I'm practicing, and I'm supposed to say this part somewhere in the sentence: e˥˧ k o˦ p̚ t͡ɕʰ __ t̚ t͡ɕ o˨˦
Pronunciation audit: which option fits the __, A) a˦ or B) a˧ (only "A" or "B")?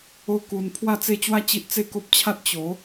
A